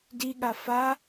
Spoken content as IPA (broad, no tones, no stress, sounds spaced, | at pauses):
d i ɠ a f a